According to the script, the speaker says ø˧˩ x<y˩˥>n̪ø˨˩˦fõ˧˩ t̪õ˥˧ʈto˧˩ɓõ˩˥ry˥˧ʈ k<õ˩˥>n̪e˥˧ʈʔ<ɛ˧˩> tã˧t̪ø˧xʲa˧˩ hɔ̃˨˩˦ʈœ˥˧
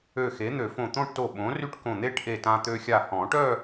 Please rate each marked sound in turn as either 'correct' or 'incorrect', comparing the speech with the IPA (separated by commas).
incorrect, incorrect, incorrect